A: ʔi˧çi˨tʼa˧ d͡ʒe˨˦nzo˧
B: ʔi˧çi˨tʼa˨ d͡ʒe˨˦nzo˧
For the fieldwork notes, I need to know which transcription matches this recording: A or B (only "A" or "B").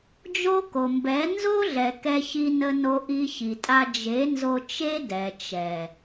A